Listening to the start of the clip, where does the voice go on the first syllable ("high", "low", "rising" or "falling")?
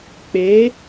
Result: rising